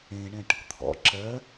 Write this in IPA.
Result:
ẽ ɳ ɛ̃ ʈ | t̪ʰ ɔ̰ ǁ ɜ

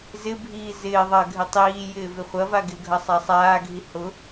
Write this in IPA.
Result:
z ɪ bʱ iː z ɪː ðˤ ɐ ɡʱ ɪ tˤ iː j ɪː v ɪ χʷ ɐ v a ɡ ɪ ɡʱ ɐ sˤ a sˤ aː ɡʱ i h ʊ

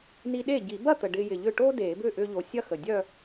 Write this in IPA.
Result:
n i˧ ɗ e˥˩ ɟ i˨˩˦ b ɐ˥˩ t̪ ə˨˩ ɖ ɪː˧ j ɪ˨˩ ʎ ʏ˥˩ ʈ oː˥ d eː˨˩˦ b ʏː˥˩ ʔ ʏː˧ ʎ o˨˩ sʲ ɐ˥˧ x ə˨˩ dʲ œ˥˧

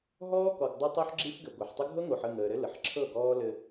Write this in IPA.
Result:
ɦ ɔː˦ k ɔ˨ ɡ dˤ ə˦ tˤ o˦ ħ ɡ͡ǁ i˦ f ɡ ɘ˨ ɡʷ ɤ˨ ħ tˤ ə˦ ɡʱ ɤ˦ ŋ o˨ ħ ə˦˨ ŋ əː˨ ɾ ɘ˦ l ə˨ ħ ǁʰ ɤ˦˨ ɡ ɔː˦ l ɘ˦

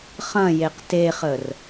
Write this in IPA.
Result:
χ ɐ̃ j e q t e χ ə r

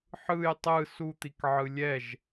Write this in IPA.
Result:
ħ ɯ j tˤ ɯ s u t̪ i k ʕ ɯ lʲ ɛ ʒ

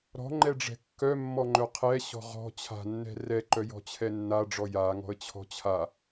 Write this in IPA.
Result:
ɾ ɔ̤ ŋ͡ǃ ɛ ɖ͡ʐ ɛ̤ kː œ mː ɔ ŋ͡ǃ œ qʰ ɛ ɕ ɔ̤ ʁ ɔ̤ t͡ɕʰ a̤ nː ɛ̤ r ɛ ǃ œ j ɔ̤ t͡ɕʰ ɛ nː a ɖ͡ʐ ɔ j a ŋ ɔ̤ ə̯ t͡ɕʰ ɔ̤ t͡ɕʰ a

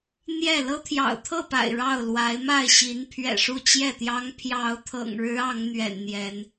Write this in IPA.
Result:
n̪ j ɛ˥˨ l ɤ˦ t̪ʰ j ɑ̰˨˩ ʊ̯ t̪ʰ ɤ˥˨ p a̰˨˩ ɪ̯ ɻ ɑ˥˨ ʊ̯ l w a˨˦ ɪ̯ m a˥˨ ɪ̯ ɕ i˨˦ n pʰ ɥ ɛ̰˨˩ ʂ u˥˨ t͡ɕ j ɛ˥˨ t̪ j ɑ˦ ŋ pʰ j ɑ˨˦ ʊ̯ t̪ʰ ɤ̰˨˩ ŋ ɻ ɻ̩˨˦ ɑ˨˦ ŋ n̪ ɥ ɛ̰˨˩ n n̪ j ɛ˨˦ n

